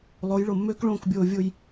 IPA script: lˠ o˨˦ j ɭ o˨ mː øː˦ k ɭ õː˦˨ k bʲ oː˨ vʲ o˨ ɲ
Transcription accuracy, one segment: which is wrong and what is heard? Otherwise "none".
ɲ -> j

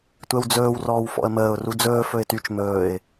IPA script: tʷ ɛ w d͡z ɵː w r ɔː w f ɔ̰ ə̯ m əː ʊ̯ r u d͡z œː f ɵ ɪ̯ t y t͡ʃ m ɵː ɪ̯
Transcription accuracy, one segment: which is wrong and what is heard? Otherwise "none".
œː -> ɵː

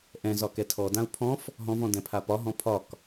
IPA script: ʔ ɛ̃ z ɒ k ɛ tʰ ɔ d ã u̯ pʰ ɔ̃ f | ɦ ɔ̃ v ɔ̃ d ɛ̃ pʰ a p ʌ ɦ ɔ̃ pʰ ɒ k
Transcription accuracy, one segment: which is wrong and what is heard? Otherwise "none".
ʌ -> ɒ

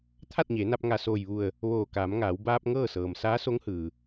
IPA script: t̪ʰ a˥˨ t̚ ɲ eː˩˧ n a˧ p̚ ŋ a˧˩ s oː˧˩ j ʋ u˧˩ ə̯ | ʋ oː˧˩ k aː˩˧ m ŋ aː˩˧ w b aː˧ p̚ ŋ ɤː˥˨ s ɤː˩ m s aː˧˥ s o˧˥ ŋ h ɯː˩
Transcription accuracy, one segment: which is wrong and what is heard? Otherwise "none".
none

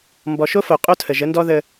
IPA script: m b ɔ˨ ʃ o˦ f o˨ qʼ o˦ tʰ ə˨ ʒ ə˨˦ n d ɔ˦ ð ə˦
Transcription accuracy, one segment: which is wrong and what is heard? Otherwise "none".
none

